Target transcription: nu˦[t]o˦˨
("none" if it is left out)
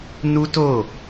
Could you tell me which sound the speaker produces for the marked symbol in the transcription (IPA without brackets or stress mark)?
t